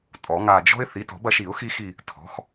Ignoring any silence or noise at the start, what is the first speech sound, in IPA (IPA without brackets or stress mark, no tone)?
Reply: tʼ